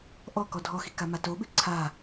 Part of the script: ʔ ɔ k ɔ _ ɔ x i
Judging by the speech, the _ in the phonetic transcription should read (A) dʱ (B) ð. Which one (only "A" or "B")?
A